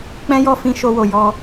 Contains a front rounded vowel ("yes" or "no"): no